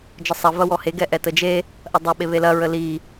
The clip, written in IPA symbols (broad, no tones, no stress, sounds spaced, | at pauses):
d͡ʒ ə sˤ ɐ v ɐ w ɔ h e ɡ ɛ ʔ ɛ t ə d͡ʒ e | ʔ ɐ dˤ ɛ ɓ e β e l ɐ ɹ ə l i